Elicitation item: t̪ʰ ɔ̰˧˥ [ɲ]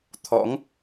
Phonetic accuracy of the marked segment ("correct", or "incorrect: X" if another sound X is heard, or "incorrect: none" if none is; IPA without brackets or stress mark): incorrect: ŋ